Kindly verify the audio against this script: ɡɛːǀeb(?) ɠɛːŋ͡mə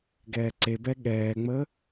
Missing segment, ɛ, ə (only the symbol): ɛ